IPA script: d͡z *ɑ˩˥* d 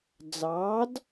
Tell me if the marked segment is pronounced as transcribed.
no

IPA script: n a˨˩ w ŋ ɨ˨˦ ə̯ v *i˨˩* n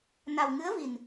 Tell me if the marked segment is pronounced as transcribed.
yes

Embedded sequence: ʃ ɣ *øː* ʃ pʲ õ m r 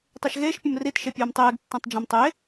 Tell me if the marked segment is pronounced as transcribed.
no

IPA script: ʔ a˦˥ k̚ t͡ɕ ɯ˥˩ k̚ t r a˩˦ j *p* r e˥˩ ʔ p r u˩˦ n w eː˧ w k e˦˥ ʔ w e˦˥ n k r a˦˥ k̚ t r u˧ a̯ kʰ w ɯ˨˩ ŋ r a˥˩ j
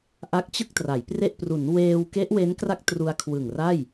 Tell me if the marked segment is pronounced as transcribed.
yes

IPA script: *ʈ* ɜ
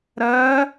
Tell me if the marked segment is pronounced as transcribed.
no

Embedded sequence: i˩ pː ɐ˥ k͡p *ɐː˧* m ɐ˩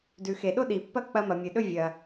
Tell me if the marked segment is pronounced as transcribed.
no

